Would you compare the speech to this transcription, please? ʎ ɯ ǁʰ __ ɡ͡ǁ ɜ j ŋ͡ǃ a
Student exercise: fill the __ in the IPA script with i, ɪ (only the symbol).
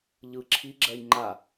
i